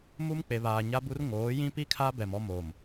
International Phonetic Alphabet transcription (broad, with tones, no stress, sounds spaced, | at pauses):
m u˦ m k͡p e˨ β aː˨ ɲ a˦ b u˦ r ŋ oː˨˦ j ĩ˦ p i˦ kʰ a˦ b ɛ˨ m ɔ˦ m oː˨ m